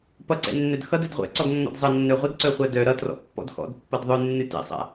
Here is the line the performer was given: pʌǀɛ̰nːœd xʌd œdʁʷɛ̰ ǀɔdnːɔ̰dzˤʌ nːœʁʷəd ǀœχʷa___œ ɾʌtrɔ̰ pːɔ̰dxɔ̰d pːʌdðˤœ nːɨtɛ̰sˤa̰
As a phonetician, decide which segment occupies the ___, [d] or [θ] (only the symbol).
d